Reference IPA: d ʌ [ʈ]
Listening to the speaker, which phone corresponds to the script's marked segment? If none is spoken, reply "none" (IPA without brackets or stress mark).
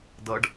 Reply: ɖ